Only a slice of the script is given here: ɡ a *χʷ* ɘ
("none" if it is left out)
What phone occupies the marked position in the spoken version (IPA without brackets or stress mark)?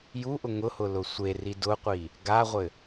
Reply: ʁʷ